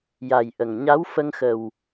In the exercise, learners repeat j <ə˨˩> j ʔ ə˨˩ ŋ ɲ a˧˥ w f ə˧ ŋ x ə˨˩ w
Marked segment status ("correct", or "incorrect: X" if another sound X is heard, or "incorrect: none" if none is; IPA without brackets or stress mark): incorrect: a˨˩